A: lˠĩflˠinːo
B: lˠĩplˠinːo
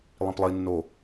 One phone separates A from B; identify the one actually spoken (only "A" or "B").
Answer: B